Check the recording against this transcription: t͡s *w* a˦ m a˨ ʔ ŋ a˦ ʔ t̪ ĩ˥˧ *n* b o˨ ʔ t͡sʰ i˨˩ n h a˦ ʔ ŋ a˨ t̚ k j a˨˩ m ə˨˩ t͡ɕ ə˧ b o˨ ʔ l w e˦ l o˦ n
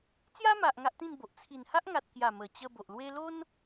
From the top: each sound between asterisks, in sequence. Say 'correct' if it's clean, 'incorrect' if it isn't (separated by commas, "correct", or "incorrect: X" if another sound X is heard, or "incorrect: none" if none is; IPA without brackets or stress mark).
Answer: incorrect: j, correct